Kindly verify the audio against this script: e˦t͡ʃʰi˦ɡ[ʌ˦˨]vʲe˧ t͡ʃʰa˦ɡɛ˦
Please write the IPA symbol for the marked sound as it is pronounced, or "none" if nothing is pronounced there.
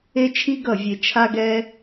ʌ˦˨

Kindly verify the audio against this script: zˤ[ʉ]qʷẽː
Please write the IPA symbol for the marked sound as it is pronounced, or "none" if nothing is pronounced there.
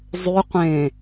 ʉ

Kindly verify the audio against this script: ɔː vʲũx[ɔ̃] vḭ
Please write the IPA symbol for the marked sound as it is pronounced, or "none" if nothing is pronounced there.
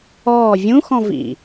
ɔ̃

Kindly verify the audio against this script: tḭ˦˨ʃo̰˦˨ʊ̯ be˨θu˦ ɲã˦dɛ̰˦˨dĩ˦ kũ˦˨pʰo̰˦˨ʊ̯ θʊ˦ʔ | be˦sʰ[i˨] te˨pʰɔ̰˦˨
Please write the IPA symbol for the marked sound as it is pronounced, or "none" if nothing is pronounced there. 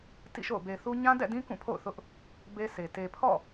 e˨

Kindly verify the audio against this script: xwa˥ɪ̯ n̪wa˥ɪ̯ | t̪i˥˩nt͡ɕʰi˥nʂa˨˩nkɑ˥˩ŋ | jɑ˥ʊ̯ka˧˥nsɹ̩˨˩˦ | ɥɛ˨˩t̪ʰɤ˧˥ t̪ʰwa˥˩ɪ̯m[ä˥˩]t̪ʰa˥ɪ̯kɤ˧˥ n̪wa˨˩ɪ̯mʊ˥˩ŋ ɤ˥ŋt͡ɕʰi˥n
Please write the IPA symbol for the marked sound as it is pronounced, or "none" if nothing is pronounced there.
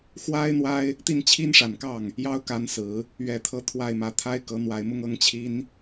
ä˧˥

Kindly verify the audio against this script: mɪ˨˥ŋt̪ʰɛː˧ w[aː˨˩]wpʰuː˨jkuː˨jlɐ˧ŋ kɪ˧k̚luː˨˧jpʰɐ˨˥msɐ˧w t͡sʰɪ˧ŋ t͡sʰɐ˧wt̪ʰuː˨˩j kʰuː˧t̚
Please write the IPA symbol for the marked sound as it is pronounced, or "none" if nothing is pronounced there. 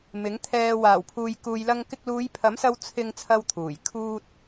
aː˨˩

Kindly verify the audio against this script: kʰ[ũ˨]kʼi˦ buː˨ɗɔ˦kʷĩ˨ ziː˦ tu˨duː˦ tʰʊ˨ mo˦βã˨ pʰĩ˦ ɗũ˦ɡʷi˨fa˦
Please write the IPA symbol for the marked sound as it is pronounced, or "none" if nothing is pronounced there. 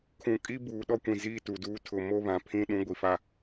ũ˨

